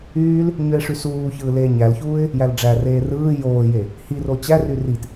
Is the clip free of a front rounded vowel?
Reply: no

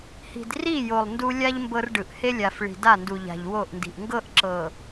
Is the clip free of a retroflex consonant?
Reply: no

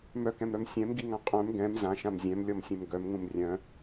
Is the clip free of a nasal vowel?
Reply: no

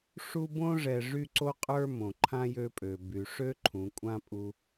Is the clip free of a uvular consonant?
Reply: no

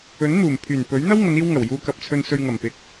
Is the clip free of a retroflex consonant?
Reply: yes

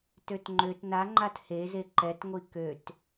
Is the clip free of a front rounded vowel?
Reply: no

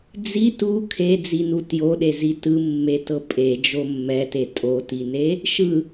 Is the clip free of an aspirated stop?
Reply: no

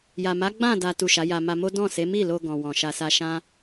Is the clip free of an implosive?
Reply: yes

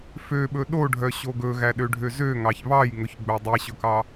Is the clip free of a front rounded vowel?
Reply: no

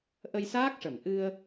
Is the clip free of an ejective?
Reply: yes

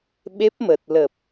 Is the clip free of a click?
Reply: yes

